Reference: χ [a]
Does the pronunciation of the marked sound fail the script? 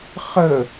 yes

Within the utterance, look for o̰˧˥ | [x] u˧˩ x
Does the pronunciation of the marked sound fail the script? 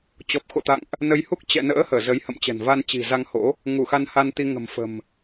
yes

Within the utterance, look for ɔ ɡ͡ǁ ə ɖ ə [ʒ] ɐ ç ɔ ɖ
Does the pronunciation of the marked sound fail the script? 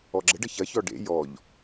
yes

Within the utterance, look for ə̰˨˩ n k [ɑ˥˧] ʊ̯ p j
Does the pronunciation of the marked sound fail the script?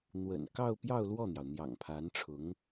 no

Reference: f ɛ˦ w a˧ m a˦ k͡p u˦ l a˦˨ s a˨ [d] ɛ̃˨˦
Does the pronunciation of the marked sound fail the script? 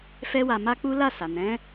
yes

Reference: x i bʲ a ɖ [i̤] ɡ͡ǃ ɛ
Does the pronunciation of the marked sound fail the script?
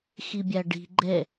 no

